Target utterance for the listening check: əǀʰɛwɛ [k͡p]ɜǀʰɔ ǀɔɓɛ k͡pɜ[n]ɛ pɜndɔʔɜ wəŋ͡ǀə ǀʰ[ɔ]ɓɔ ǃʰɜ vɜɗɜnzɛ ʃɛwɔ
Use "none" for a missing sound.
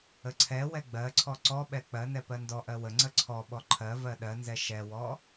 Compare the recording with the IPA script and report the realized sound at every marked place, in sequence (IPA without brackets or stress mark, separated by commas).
ɡ͡b, n, ɔ